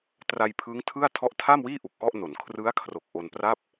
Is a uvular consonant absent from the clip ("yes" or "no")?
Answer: yes